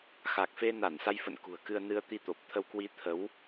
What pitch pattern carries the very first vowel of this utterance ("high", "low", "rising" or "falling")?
low